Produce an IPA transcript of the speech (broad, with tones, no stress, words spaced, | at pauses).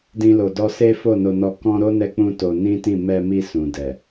dĩ˦lo˧dɔ˦ se˦fo˦˨no˧nɔ˧ kɔ̃˦ ɾo˦ nɛ˦k͡pũ˦to˧ nĩ˦tĩ˦˨ mɛ˧mi˧ sũ˨dɛ˨